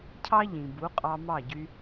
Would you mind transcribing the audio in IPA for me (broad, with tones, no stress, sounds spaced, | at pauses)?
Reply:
cʰ ɑ˥ ʎ ĩ˩ b u˩˥ qʼ ɑ˧ m ɑ˥˩ ɟ y˧